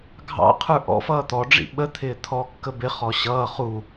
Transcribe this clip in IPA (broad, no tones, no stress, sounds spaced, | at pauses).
ɡʱ ɑ̰ qʰ ə˞ ʔ ɔ̰ f ʌː t̪ ɔ ɖ͡ʐ ḭ ɓ ə t̪ʰ ɪː t̪ʰ ɔ kː ə b ɪ χ ɔ ɕ ʌː χ u